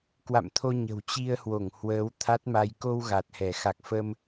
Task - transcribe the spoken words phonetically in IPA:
kwa̰˧˨mt̪ʰo˧ ɲə̤˨˩wt͡ɕi˧ə̯hwo˧˩ŋ hwəː˨˦w t̪ʰa˦˥t̚ma˧j ko˧w ɣa˨˩t̚hɛ˧˩ xa˨˩k̚fə˧m

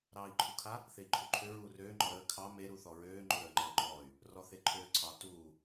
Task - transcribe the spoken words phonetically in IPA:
ɾɑːi̯ǃʰukʰa | θei̯ǃʰuǃʰøɹuː røːŋ͡ǃɔ ɾəː kʰɑ me ɾuθɔɹøː ŋ͡ǃoɾəːŋ͡ǃəːŋ͡ǃɔːy̯ | rɔθeǃʰøːǀʰɑ tuː

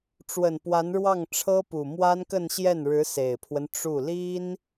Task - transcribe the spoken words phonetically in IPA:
ʈ͡ʂwə˨˩npwa˧˥nɻwɑ˥˩ŋ ʈ͡ʂʰɤ˥pu˨˩ mwa˥nkə˥˧nɕjɛ˥˩n ɻɻ̩˧˥ se˨˩ɪ̯pʰwə˦n ʈ͡ʂu˥˩ li˥n

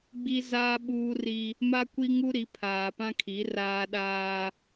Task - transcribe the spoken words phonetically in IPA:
ɡ͡bi˦ zaː˦ ɓuː˦ri˦ | ma˦kʷi˦ ŋu˦ɾi˨˦ pʰaː˨pã˦kʰi˨˦ raː˦ɗaː˦

